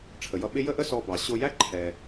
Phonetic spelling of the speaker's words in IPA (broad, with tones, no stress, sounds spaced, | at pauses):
ʈ͡ʂʰ ə˩ j ʌ˧ ɓ ɪ˥ j ə˥ ʔ ə˥ s ɔ˧ b ɑ˩ ɕ ʊ˧ j æ˥ ǃʰ ɛ˩